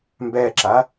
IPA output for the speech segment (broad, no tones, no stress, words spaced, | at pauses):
mbɛǁa